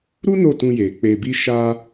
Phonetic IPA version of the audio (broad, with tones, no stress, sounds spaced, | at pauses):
ɾ u˦ n o˦˨ t ũ˧ j e˨ k͡p e˨ b i˧ ʃ a˧